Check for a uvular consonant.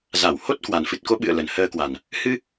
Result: absent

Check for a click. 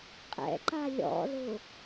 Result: present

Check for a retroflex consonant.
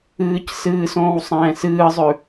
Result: absent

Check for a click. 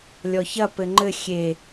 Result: present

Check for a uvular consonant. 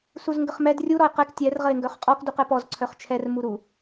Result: present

